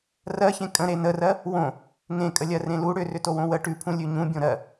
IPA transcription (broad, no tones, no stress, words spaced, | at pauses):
rɜçẽ kʼə̃ ɾenərɜ | wõ | ŋẽkʼəlʲɜ rẽlu ɽʏrʏtowõ wə ʈʉpʰũ lʲʉɲũ bʲõɾɜ